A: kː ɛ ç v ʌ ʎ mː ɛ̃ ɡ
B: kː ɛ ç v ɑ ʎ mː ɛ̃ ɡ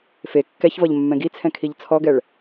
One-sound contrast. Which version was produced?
A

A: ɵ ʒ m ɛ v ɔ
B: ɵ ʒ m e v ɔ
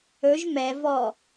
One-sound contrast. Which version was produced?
A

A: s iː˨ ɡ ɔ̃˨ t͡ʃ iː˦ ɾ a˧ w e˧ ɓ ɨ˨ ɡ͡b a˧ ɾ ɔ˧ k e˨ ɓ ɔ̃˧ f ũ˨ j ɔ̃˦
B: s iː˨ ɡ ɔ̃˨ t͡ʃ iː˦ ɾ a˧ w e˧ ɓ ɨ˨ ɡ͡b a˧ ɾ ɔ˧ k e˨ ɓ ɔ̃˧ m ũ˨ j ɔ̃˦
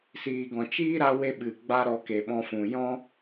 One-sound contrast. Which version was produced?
A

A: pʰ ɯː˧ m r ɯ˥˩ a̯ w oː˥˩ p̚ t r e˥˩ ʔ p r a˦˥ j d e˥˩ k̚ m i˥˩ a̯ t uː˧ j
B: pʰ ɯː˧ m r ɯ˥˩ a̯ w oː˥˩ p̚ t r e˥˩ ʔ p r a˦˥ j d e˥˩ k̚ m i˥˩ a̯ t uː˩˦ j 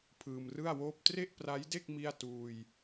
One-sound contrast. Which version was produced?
A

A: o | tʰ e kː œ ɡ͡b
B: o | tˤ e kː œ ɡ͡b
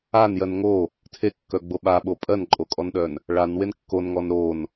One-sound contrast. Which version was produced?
A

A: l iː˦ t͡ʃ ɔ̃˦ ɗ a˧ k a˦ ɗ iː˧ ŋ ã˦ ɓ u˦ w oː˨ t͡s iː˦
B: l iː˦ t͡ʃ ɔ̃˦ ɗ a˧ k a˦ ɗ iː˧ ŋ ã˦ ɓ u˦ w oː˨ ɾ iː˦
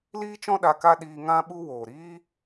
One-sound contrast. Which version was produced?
B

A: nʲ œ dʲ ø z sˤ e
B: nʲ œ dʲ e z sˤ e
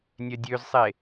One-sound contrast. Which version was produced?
A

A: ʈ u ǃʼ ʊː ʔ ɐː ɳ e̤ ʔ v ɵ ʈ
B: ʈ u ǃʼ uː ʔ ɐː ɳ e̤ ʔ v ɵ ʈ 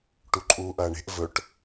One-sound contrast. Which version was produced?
B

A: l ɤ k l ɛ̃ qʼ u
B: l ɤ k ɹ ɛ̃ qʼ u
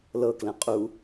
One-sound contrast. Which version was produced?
A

